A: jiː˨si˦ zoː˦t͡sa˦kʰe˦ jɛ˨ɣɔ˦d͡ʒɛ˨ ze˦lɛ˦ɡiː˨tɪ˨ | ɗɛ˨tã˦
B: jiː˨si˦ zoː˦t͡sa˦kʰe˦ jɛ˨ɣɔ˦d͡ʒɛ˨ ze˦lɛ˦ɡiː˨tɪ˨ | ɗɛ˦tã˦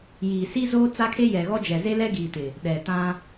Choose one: A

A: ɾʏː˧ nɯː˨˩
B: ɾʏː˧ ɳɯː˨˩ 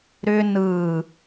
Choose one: A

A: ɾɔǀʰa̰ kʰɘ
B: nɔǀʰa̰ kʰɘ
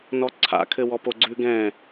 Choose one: B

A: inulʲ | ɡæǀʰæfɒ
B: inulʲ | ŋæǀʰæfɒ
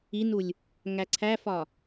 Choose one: B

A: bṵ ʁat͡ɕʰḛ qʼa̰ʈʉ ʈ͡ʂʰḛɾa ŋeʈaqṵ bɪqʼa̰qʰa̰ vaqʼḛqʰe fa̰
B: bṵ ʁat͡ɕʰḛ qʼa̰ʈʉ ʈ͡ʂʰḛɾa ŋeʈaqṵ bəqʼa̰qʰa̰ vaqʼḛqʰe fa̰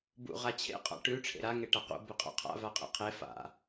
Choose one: A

